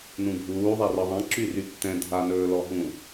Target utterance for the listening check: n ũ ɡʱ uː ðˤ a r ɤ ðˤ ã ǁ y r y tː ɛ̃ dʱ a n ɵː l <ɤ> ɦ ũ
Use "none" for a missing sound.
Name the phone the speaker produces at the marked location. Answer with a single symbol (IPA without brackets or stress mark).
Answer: ɔ